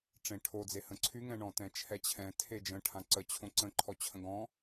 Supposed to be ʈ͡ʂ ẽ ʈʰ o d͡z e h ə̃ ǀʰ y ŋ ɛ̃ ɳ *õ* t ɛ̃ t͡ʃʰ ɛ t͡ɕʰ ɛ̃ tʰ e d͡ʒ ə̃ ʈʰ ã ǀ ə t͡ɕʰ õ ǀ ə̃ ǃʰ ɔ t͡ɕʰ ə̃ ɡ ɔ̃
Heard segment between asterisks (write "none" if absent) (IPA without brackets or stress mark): ɔ̃